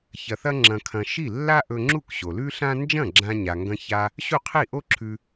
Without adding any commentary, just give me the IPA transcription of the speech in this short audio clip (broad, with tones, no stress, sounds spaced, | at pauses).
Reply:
ç ɐ˧ θ ɐ˥ ŋ͡ǁ ɐ̃˧ kʰ ɐ̃˧ ʃ i˥˩ lː a˥ ʔ ɵ˧ ŋ͡ǁ u˥˩ k ɕ o˩ l ʉ˥ ɬ ã˥ n d͡ʒ ɐ̃˥˩ ɡ͡ǁ ã˧ ɲ a˩ ŋ ɡ ɐ̃˧ ç a˧ | ɕ u˥˩ qʰ i˥˩ ʔ o˥ ǁʰ ʉ˧